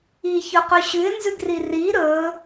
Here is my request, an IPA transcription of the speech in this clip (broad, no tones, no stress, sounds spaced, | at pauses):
i ç ɵ q ɵ ɕ ʉ ɪ̯ n z ʉ ɡ r i r i ɾ ɵ